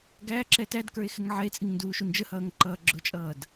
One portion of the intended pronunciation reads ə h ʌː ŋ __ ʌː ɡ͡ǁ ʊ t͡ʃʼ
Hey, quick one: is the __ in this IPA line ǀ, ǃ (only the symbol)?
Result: ǃ